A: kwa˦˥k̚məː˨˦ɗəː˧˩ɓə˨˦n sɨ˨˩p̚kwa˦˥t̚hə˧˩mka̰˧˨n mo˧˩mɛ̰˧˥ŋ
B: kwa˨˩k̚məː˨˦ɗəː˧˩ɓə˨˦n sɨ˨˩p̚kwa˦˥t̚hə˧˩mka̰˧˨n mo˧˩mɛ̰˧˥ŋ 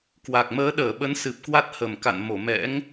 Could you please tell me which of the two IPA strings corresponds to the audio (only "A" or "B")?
B